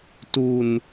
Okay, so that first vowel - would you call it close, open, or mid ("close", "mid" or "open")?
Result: close